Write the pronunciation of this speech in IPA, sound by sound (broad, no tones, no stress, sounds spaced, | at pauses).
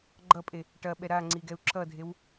ɡ͡ǃ ʌ pʼ e | ʈ ɐ ɓ ɛ ɾ a ŋ͡ǀ i ɡ ɛ u̯ ǁ ʌ dʱ e w